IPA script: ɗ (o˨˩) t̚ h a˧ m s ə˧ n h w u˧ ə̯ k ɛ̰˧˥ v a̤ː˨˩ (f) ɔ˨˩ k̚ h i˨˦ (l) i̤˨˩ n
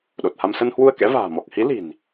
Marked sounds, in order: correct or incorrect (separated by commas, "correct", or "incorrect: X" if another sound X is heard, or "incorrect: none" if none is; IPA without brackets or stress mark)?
correct, incorrect: m, correct